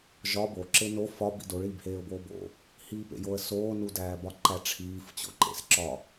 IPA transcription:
ʒ ɒ b o ǁ e n o f ɒ b ḭ d o ɭ iː b h eː ʊ̯ b oː b o̰ | h iː p ḛ j o ə̯ s oː n u d æː b ɒ ǃ æ ʈ͡ʂʰ iː f t͡ɕ o̰ ǃ ḛ s ǁ ɒ

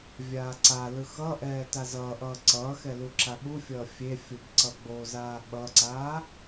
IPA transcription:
vʲ aː ǀ a l ɯ x ʌ ʔ ɛː t a z ʌː ʔ ʌː ǀ ʌː x ɛ l u ǁ a ɓ u fʲ ʌː fʲ e fʲ u b ǀ ʌ ɡ͡b o z aː ɓ ʌ ǀ aː

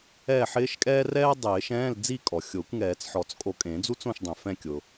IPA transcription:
ɛː˥˨ ħ ɪː˥ ʃ kʼ ɛː˥ r ɛː˥ dˤ ɪː˨˩˦ ʃ ɛ̃ː˧˥˧ l d͡z i˥˨ kʼ ɔ˩ xʲ ʊː˨˩˦ kʷ ŋ ɛː˨˩˦ t͡s ħ ɔ˨˩˦ t͡s kʼ o˧˩ kʼ ẽ˨˩˦ d͡z u˥ t͡s õ˥˨ ʃ dˤ ẽ˩ f ɛ̃˥˨ kʲ ʊ˩

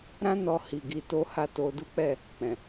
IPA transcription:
ɾ ã˦ n ɔ˧ h i˨ ɡ i˧ t o˦ h a˦ t o˧ d u˦ k͡p ɛ˦˨ | k͡p ɛ̃˨

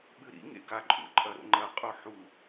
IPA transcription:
ɓ ɨ ɾ ḭ ŋ ḛ ɡ a ǃʼ ṵ ǃʼ ɐ ɾ o̰ ŋ͡ǃ ɐ qʼ o ħ u

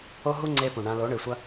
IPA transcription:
o˦ ɦ u˦ ŋ͡ǀ e˧ p ũ˨ ɳ ã˧ l o˨˦ ɳ ɨ˨ sʷ ɐ˦

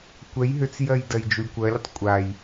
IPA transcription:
kʷ ɛ j ɦ ʏ t͡s j ɜ j d ɜ j d͡ʒ u lʲ kʷ ɜ lʲ ə tˤ kʷʼ a j

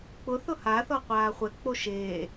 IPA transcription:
k͡p ʊ θ ʊ h a θ ɔ qʷ aː χʷ ɛ k͡p o ʃ eː

